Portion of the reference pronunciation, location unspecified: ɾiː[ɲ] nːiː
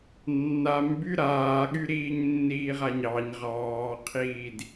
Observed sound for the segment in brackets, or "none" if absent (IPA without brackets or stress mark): ɲ